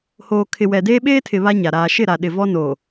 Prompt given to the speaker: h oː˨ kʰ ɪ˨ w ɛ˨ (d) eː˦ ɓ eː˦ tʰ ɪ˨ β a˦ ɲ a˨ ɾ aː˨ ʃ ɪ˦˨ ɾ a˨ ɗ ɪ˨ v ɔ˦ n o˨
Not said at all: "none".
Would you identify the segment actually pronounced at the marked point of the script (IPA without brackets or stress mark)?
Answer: d